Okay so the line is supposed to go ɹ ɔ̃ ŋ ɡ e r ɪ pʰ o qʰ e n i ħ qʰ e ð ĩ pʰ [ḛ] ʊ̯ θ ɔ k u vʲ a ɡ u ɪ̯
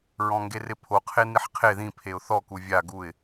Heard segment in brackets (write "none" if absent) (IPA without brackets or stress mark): e